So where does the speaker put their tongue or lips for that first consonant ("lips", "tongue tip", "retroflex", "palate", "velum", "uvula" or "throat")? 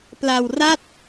lips